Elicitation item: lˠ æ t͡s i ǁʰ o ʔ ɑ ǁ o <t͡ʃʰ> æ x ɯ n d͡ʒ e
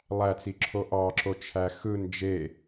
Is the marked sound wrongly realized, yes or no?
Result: no